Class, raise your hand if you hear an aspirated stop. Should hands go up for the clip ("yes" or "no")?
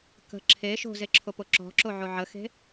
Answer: yes